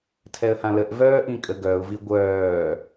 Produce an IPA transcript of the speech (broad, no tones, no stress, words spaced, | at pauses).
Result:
tʰɛə̯hãləʔ vœːʔĩkʼə ɡœʊ̯ viɡʷœː